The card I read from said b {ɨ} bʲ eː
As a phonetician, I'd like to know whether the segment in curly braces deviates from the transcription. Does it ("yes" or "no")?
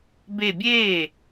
yes